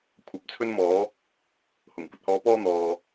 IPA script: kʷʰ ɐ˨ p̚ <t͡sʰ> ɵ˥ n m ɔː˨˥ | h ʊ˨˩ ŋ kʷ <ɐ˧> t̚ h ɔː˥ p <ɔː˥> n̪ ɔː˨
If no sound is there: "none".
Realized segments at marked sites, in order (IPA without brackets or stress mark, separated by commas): t͡sʰ, ɐ˧, ɔː˥